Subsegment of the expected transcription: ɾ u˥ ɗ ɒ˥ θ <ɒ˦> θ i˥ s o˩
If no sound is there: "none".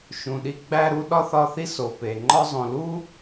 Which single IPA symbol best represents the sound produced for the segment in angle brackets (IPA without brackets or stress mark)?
ɒ˦